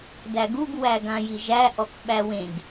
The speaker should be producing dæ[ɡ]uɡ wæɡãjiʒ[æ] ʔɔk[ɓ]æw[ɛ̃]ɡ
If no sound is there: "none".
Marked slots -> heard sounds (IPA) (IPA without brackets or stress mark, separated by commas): ɡ, æ, ɓ, ẽ